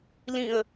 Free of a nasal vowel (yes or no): no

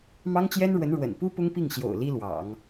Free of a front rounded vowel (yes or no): yes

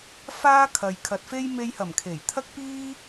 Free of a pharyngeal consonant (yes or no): yes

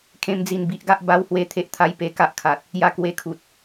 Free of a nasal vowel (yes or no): no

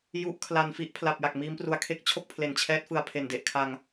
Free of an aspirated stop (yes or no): no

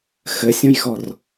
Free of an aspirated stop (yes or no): yes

